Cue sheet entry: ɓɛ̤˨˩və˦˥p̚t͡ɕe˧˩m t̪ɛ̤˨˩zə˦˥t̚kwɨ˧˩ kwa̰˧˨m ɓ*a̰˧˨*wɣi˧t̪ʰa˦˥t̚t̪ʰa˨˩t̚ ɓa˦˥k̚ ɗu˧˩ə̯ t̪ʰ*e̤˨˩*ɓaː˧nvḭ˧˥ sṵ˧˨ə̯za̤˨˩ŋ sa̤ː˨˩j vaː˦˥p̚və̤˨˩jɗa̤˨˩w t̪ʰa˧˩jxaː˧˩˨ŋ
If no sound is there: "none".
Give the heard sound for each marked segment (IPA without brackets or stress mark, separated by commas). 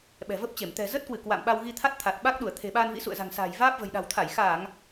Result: a˧, e̤˨˩